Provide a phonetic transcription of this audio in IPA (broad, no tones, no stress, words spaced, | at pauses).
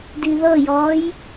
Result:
diðɤjɔːj